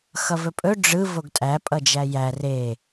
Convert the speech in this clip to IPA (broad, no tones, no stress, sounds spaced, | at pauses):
x ʌ v ɵ pʼ ɵ ɖ͡ʐ ɯ v o ɡ tʼ æ pʼ ʌ d͡ʒ æ j æ r e